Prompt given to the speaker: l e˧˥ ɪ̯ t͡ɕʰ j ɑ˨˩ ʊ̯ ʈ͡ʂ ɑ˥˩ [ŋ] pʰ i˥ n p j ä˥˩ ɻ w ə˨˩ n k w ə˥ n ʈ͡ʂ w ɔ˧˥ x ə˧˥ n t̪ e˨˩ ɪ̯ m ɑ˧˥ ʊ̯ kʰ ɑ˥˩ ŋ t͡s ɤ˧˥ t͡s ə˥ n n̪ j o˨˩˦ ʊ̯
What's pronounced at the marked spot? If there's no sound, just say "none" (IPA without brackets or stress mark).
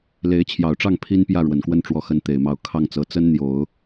ŋ